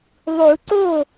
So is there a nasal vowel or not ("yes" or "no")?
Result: no